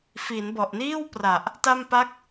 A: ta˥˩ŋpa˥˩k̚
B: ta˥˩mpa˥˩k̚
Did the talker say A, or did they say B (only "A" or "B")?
B